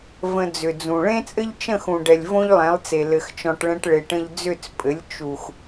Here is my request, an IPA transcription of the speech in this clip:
v ə̃˧ d͡z ʏ˨ d͡z ũ˨ ɭ ẽ˦ t͡sʼ ɘ˦ ʎ t͡ʃ ə̃˦˨ x ũ˨ ɖ ɛ˨ lʲ v õ˦ ʎ lˠ ɛ̃˨˦ lˠ t͡s e˨ l ɘ˨ x t͡ʃ ɔ̃˨ ʈ ɭ ɛ̃˧ ʈ ɭ e˨ ʈ ə̃˧ ʎ d͡z ʏ˦˨ t͡s pʼ ɘ˨˦ lʲ t͡ʃ u˨ x

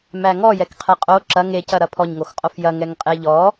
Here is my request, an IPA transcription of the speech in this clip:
m æ ŋ ɔ j ɛ k qʰ ɛ qʼ o ǁ ɐ ŋ e c ɐ ɾ ɐ pʰ ɔ ɲ ŋ o x qʼ o f j ɐ ŋ ɛ ŋ qʼ e ʎ ɔ

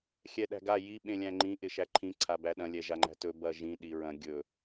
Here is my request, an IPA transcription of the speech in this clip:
xʲ ɛ ɗ æ̤ ɡ a j i ɓ ẽ lʲ æ̃ ŋ͡ǃ ĩ ʔ ɪ ʃ æ ǃʰ ĩ ǀʰ a b æ ɗ ɐ̃ lʲ ɛ ʒ a ŋ͡ǃ æ̤ t ɵ b ɐ ʒ ĩ ɗ i ɹ ɐ̃ ɡʲ ɵ

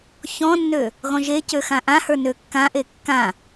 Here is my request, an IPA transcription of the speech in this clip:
ç ɔ̃ nː ø | ɣ ɔ̃ ʒ e c ø x ã ʔ ã h ə˞ n ø kː ã ʔ e kː ã

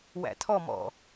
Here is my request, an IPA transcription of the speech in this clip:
w æ̰ tʰ ɔ m ɔ̰

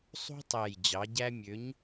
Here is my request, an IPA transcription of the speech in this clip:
sˤ ṳ˦ tˤ æ˨˩ j d͡ʑ ɑ˩˧ ɟ æ˦ mʲ ø˨˥ ɲ

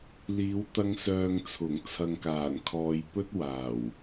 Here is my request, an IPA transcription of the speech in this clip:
l iː˨˧ w t̪ ɐ˧ ŋ s œː˨ ŋ t͡sʰ ʊ˨˩ ŋ t͡sʰ ɐ˨ ŋ k aː˨˩ n kʰ ɔː˨ j p ɵ˥ t̚ w aː˨˩ w

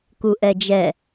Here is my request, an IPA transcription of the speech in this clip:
k u ʔ ɛ d͡ʒ ɛ

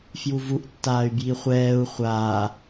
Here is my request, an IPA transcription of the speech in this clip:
f j u v u ʔ tː aː y̯ b j i χʷ ɛː u̯ χʷ aː

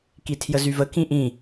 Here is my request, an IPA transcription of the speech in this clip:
k i tʰ j ə z y v ə k ĩ ʔ ĩ

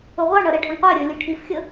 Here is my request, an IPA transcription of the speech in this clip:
ʊ ʁʷ ɑ ɳ ʌ ɾ ɛ ɖʱ ʊ ɳ qʷ æ ɾʲ ə˞ lʲ u ʈʰ i f xʲ ə

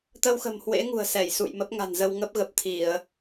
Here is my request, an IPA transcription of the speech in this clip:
t̪ ə˧ w x ə̤˨˩ m h w ḛ˧˥ ŋ ṳ˨˩ ə̯ s ɛ˧˩ j s ṵ˧˨ j m ə˦˥ p̚ ŋ a̤˨˩ n z ə˧ w ŋ ə˦˥ p̚ ɣ ə˨˩ p̚ t̪ʰ i˧˩˨ ə̯

